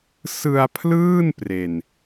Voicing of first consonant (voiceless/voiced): voiceless